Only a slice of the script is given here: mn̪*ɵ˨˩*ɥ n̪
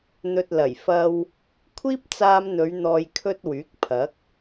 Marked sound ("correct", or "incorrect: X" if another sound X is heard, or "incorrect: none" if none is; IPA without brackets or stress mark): incorrect: ɵ˨˧